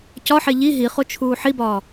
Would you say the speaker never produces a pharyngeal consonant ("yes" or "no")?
no